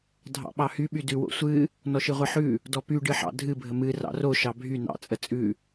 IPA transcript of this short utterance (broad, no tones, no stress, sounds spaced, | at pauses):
dʱ ɑ̰ ɓ ɑ h y ɓ y d ʉ w o̰ sʷ ɨ | n ɔ ʃ ɨ ʁʷ ɨ ħ ʉ | d ɔ p y ɖ ɨ ħ ɑ̰ dʱ ɨ bʱ ə m ɨ r ɑ̰ r o ʃ ɑ bʱ y n ɑ̰ t͡sʼ ə t͡sʼ ʉ